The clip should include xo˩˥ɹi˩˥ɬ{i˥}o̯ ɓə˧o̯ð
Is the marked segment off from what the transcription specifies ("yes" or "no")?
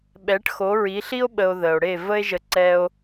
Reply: no